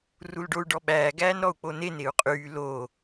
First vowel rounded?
yes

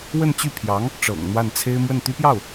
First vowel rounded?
no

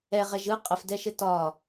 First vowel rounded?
no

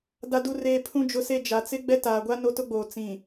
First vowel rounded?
no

